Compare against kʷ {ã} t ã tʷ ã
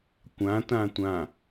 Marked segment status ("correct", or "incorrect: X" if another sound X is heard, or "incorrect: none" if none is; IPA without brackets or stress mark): correct